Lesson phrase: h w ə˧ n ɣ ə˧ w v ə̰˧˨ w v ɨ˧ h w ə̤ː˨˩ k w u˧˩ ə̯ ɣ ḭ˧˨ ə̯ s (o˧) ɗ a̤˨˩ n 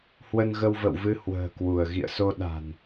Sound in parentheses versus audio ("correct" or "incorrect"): correct